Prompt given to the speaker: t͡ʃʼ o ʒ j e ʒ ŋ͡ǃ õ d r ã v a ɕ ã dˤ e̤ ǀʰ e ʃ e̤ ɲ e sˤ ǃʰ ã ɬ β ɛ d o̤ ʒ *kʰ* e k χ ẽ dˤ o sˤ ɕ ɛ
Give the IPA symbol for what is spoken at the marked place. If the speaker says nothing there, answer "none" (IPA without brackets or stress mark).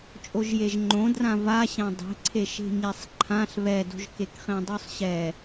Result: k